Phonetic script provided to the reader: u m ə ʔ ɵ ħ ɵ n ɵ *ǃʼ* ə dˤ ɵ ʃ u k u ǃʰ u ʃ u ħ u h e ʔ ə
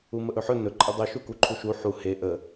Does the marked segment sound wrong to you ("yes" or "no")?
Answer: no